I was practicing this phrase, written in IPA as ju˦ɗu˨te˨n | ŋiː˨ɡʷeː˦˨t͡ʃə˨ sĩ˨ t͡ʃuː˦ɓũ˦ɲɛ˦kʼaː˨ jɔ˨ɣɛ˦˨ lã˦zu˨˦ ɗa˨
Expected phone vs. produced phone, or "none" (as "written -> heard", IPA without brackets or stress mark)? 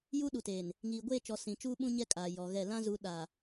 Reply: ə˨ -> ɔ˨